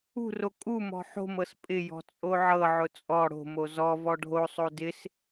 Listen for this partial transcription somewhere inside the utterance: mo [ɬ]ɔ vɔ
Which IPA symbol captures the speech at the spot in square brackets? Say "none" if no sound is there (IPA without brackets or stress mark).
z